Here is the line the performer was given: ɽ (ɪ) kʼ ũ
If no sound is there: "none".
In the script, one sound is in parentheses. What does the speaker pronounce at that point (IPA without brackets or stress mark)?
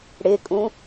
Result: ɪ